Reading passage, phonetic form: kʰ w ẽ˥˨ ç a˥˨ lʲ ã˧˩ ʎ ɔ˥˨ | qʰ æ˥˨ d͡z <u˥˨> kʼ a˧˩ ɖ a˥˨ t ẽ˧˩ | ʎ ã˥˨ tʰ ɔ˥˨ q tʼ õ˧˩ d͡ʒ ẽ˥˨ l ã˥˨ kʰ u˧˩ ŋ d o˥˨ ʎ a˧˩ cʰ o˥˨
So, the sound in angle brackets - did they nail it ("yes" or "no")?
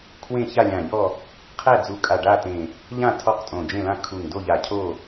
no